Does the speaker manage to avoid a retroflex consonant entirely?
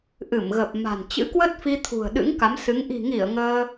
yes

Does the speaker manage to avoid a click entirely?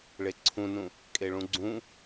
no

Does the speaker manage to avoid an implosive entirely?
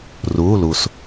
yes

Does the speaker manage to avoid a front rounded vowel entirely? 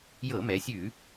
yes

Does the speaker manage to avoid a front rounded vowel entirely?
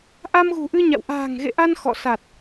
yes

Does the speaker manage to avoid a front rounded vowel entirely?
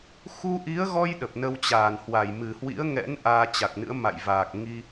yes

